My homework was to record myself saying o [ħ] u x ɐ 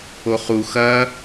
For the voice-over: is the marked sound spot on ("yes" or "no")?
no